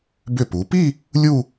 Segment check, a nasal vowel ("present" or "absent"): absent